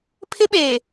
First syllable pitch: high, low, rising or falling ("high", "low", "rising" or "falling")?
high